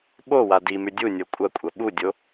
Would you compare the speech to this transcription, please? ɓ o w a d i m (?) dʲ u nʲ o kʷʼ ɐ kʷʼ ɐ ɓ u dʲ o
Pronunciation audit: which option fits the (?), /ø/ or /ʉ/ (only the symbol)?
ʉ